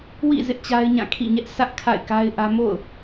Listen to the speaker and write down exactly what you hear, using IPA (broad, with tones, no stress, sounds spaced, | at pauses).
w ḭ˦˨ z ɪ˦ ʔ t͡ɕ a˦ ɪ̯ ɲ ã˦˨ kʰ ḭ˦˨ ɲ ɛ˦ ʔ s ä˦ ʔ kʰ a̰˦˨ ɪ̯ k a˦ ɪ̯ ʔ ä˦ m o̰˦˨ ʊ̯